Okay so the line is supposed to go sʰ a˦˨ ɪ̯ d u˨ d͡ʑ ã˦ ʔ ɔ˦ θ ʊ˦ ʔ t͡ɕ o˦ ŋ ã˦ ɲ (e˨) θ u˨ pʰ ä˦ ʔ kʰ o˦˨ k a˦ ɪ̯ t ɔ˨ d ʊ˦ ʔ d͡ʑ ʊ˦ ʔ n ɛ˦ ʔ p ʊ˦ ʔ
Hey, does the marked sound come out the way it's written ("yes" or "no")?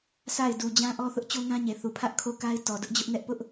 yes